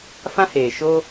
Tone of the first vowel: high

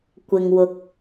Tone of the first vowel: low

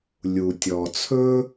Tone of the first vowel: low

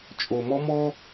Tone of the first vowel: low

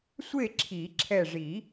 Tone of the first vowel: falling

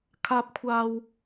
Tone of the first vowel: low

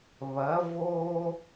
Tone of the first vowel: rising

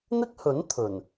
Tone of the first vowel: high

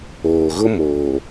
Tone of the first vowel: low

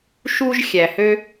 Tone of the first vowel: high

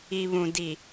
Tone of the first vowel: low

